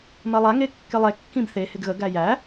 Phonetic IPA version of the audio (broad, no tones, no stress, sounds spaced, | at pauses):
m ɐ lˠ a ŋ e kː ɪ lˠ ɛ kː ĩ b θ e h ɪ ɡ ɣ ə ɡ æ j æ